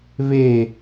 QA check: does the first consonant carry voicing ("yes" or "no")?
yes